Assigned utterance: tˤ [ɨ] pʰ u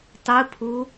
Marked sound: correct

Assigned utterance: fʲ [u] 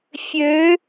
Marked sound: incorrect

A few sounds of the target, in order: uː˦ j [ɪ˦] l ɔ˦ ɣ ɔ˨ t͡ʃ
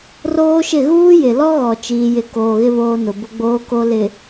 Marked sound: incorrect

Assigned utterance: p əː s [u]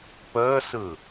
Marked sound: incorrect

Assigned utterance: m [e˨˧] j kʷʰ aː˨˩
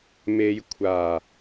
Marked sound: correct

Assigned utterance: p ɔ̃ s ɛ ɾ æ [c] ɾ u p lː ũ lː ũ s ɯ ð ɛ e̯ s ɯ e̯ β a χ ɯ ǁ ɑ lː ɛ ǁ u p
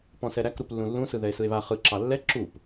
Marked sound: incorrect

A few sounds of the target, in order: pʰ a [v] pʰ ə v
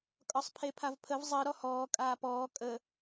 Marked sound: correct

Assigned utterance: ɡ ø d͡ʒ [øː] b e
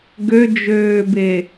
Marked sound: correct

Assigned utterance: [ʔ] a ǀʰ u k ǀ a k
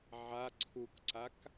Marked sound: incorrect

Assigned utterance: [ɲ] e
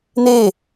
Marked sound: incorrect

